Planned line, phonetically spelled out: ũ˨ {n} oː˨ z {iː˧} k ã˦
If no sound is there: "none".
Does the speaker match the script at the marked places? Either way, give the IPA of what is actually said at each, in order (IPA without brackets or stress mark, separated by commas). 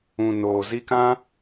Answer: n, i˧